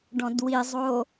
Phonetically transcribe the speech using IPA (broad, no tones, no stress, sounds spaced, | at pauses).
ɖ ɔ̃ d w i zˤ oː